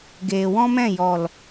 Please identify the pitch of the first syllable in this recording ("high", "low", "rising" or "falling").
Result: low